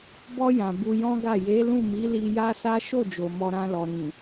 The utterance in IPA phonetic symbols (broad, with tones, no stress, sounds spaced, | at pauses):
b ɔ˧ j ã˨ b u˧ j ɔ̃˦ ɡ a˦˨ j e˨˦ l ũ˦˨ m i˨˦ l i˧ j a˦ s a˦ ʃ o˦˨ d͡ʒ o˨ m ɔ˨ ɾ ã˧ l ɔ˨ ɾ ĩ˨